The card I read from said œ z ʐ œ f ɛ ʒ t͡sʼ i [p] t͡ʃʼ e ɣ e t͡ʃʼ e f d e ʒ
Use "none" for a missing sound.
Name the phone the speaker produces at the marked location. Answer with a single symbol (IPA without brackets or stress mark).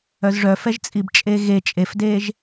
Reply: b